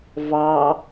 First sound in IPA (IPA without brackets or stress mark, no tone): v